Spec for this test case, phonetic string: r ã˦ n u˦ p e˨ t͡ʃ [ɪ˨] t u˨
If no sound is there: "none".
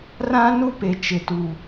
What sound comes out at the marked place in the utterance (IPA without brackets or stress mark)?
ɪ˨